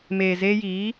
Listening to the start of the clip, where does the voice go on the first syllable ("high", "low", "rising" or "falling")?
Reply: low